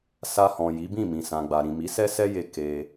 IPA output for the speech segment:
sa˧hɔ̃˨ ji˨˦bĩ˦˨ mĩ˨sã˨ɡ͡ba˨ ɾĩ˨mi˨˦sɛ˦sɛ˦ je˧ ke˧

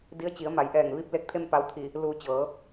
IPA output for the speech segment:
di˧˥ə̯t͡ɕi˩˧ə̯ma˩˧j ʔɛː˧˩ŋ ʋi˧p̚ le˧˥k̚t̪ʰe˥˨mpa˧w t̪ʰi˧˩ | luː˧˩ t͡ɕɤː˩˧

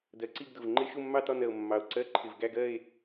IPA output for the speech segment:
dɜ˨˩ǀi˥˨ɡdʊ˨˩v ŋ͡ǃɪ˧˥˧ ʃʊ˥˨mːɑ˥˨tɒ˥˨nɜ˨˩o̯ mːɑ˨˩o̯ǀɜ˧˥˧ ǃʰɪ˨˩vɡæ˥˨ɡɜ˥˨e̯

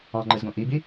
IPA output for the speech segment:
ɑ̃ŋ͡ǃɯzɡõ ʔibi

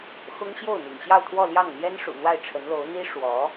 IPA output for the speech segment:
xʊ˥ŋ ɕjo˥˩ʊ̯n̪ḭ˨˩ŋ ɕjɑ˥˧ʊ̯t̪ʰwɔ˥˧ ljɑ˥˩ŋn̪jɛ˥n ʂṵ˨˩n̪wa˥˩ɪ̯ʈ͡ʂʰə˧˥nlo˧˥ʊ̯ n̪i˥ ʂwɔ˧˥

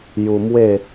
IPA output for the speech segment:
ju˧mwe˥˧

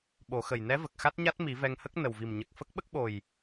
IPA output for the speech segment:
ɓo˨˩˦xə˨˩jnɛ˧˥ və˨˩k̚xa˦˥t̚ɲa˦˥t̚mi˨˩˦ vɛ˧ŋhə˦˥k̚ nə˨˩wvi˨˩mɲə˨˩k̚ fə˦˥k̚ɓə˦˥k̚ɓo˨˩j

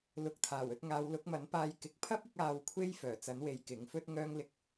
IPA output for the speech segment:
lʊ˨k̚t̪ʰaː˨˩wɵ˧t̚ ŋaː˨˧wlʊ˨˥k̚mɐ˨˥n paː˧jkɪ˨k̚ pʰɐ˥p̚ɪ˧k̚ aː˧wkʷʰe˥j fœː˨˩t͡sɐ˨˥nwe˨˧j kɪ˨˥ŋfɵ˥t̚ŋœː˥ŋ lɪ˧k̚

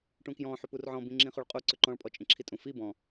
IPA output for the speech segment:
ʈũkjɔ̃ ħʏpurʕɔ̃ bĩŋ͡ǁĩχuɭqʼu ǀʏǃɔ̃ɭ pʼɔt͡ʃʼĩǁʰitʼũ fi bɔ̃

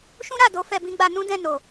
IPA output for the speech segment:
ʃũ˦ɾa˦˨do˨˦ fɛ˧bĩ˦ɡ͡ba˧ nũ˦dɛ̃˦˨no˨

